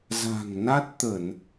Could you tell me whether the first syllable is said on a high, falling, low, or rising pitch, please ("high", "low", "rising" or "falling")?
low